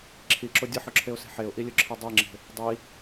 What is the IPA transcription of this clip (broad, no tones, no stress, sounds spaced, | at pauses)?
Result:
ǁʰ i ǁ ʊ dʲ ə ħ ʊ ǁʰ e ʊ̯ s e̤ ħ e ʊ̯ ʔ i lʲ ʊ ǁʰ i dˤ e ŋ͡ǁ e̤ | dˤ i